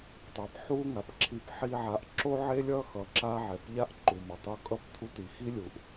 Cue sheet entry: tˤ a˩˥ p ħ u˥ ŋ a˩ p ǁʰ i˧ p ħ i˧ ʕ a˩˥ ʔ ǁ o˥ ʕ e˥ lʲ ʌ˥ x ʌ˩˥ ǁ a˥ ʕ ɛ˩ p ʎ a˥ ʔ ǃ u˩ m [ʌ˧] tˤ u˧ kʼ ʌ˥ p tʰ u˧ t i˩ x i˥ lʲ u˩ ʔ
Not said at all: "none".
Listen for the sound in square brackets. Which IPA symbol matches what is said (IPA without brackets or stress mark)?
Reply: ʌ˩